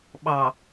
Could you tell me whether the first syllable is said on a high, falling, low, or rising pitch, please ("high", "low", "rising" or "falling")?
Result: low